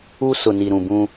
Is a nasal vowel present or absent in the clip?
present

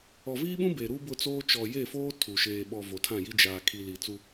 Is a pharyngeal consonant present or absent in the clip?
absent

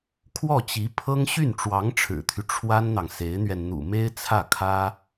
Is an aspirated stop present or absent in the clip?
present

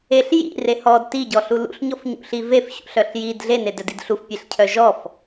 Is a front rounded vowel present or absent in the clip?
present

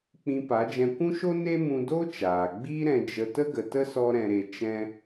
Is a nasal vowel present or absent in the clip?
present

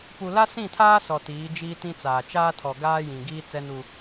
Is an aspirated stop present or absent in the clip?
present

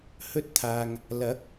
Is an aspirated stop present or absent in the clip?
present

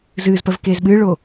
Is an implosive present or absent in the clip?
present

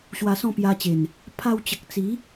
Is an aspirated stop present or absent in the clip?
present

